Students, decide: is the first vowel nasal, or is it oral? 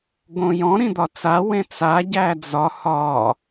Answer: nasal